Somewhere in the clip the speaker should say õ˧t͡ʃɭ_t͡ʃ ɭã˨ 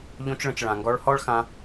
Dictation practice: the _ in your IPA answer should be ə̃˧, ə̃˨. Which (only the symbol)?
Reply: ə̃˨